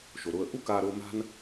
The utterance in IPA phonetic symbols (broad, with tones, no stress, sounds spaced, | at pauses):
ʃ o˩ ɾ ʊː˧ ə̯ ʔ u˥ k aː˧ ɾ ʊː˧ m a̤˥ n